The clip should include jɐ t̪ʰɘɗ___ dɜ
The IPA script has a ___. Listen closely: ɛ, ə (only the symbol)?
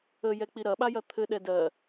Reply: ɛ